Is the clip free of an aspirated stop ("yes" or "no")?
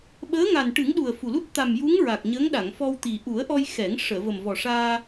yes